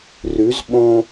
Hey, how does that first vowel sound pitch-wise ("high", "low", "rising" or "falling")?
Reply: rising